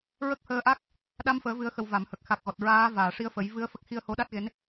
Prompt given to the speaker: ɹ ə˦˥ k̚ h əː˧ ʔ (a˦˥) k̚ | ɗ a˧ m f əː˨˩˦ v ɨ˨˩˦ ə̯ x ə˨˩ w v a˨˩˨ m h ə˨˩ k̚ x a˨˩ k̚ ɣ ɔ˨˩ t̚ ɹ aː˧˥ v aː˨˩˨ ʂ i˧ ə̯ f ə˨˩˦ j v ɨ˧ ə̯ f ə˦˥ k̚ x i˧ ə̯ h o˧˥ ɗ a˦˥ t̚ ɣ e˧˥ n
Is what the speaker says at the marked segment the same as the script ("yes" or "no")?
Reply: yes